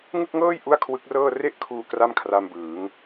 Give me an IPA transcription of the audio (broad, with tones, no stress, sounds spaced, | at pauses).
ŋ ɯ˥˩ k̚ ŋ ɤː˥˩ j ʔ u˥˩ a̯ kʰ w ɯ˦˥ k̚ r ɤː˥˩ r e˥˩ ʔ kʰ uː˧ k r a˥˩ m kʰ r a˧ m b ɯː˩˦ ŋ